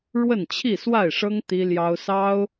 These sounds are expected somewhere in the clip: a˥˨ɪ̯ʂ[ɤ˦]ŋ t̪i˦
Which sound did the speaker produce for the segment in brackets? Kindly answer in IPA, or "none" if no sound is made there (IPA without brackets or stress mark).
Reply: ɤ˦